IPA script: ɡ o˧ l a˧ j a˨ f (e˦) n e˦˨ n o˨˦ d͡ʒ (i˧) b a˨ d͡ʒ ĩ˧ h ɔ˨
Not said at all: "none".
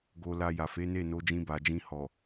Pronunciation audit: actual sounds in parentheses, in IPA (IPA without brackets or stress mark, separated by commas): e˨˦, ĩ˧